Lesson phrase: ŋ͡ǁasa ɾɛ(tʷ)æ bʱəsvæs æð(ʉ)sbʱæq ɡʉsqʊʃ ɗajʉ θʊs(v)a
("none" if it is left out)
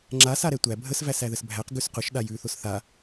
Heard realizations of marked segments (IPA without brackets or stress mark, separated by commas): tʷ, ə, θ